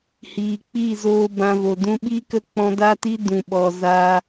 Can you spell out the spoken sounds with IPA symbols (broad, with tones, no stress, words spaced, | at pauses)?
hiː˨ k͡piː˦˨zoː˧ bã˧vo˨ dũ˧ɓi˦kə˦˨ k͡pɔ̃˧da˦ti˦ dũ˨ɓɔ˨zaː˧